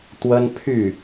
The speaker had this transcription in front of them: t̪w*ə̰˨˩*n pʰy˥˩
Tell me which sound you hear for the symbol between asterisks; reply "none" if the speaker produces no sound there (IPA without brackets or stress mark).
ə˥